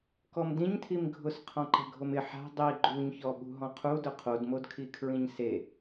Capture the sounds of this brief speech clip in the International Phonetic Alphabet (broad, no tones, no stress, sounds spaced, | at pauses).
k ɔ m d ĩ ɲ tʰ i m ɡʱ ʊ s qʰ ɔ̃ ǃ ɛ̤ ɡʱ o m ɪ ħ a̤ dˤ i ɡ͡ǃ u ɲ ç ɔ ɓ ṳ ɦ ɔ̃ qʰ u d ʊ qʰ o d m o d kʰ i kʰ ɹ ĩ ɲ s e